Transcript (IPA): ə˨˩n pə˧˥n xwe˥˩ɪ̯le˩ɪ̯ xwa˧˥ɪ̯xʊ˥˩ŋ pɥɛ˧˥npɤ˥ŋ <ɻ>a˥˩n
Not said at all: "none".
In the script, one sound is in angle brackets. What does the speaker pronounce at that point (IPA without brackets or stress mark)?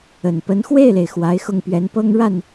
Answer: ɻ